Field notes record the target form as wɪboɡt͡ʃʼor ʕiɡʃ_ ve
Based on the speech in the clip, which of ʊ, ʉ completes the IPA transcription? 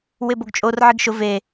ʊ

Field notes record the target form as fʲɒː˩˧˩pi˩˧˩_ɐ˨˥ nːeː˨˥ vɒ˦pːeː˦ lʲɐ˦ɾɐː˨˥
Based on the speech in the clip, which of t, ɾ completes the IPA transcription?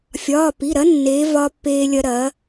ɾ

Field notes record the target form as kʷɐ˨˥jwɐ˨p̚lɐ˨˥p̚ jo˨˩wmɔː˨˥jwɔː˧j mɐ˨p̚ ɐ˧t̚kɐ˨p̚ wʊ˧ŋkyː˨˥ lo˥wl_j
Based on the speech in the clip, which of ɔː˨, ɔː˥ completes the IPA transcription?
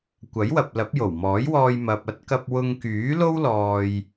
ɔː˨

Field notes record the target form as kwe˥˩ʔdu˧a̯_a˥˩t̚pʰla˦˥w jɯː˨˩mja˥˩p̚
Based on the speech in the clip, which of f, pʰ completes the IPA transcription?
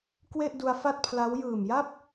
f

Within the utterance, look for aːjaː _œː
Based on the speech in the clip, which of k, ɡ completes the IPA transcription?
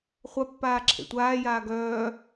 ɡ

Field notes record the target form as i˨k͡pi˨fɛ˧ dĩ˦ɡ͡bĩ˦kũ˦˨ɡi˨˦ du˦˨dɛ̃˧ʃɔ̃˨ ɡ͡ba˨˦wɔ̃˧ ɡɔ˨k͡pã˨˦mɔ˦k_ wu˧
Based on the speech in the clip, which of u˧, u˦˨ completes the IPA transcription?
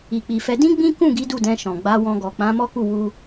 u˦˨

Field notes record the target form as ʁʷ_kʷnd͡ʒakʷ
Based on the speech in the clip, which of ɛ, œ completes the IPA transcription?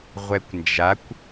ɛ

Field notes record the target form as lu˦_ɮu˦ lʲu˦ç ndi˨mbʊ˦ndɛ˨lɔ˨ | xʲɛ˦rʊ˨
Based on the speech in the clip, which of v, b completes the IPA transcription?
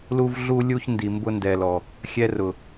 v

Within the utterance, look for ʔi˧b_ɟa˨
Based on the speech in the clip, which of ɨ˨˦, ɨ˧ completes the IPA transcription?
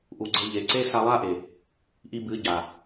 ɨ˨˦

